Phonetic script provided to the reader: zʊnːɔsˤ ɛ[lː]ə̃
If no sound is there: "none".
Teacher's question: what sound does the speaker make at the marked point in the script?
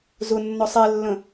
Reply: lː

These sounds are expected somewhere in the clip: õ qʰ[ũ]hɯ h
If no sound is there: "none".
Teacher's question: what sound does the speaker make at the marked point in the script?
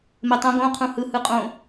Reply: ũ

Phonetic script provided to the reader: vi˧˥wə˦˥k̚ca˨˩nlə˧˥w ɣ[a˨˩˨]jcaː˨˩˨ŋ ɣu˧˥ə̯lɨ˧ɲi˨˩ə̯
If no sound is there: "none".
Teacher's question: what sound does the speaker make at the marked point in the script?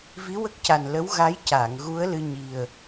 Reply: a˧˥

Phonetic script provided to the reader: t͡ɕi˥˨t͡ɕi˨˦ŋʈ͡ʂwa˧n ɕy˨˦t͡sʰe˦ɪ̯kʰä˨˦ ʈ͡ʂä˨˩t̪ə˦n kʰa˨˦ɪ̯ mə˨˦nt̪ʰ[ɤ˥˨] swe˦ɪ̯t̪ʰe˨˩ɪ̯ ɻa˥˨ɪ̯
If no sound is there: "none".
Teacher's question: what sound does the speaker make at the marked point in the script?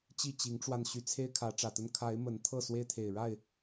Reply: ɤ˥˨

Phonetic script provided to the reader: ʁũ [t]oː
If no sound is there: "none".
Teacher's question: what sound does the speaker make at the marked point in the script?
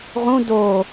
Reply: d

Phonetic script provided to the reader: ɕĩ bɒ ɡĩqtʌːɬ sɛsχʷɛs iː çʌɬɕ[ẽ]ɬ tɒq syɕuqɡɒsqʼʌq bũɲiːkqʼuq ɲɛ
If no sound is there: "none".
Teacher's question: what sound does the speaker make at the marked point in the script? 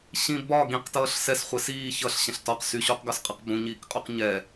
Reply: ɛ̃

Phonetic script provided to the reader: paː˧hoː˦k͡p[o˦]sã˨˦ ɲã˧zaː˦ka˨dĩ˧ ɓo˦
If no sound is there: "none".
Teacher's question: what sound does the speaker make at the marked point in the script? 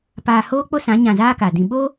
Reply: o˦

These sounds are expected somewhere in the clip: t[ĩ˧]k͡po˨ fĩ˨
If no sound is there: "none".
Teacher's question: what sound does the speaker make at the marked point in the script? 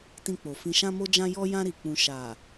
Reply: ĩ˧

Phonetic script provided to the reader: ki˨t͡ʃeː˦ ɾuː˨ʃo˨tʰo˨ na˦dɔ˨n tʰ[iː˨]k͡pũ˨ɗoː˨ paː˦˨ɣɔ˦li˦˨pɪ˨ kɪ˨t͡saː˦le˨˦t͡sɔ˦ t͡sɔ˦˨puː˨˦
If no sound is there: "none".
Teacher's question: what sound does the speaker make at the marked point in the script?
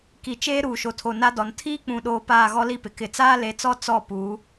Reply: iː˦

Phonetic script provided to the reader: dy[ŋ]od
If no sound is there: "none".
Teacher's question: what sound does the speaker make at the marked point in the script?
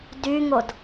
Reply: ŋ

